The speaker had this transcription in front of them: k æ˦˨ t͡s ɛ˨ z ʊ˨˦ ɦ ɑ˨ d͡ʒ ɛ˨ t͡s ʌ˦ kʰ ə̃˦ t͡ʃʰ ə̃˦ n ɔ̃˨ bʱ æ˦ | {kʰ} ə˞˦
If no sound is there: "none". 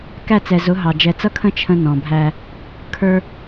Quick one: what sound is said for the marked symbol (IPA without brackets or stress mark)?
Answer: kʰ